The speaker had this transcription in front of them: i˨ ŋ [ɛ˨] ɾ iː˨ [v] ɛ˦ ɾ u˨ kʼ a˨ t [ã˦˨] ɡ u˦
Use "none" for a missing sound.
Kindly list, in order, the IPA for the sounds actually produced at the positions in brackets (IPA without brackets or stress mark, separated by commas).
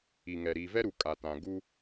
ɛ˨, v, ã˨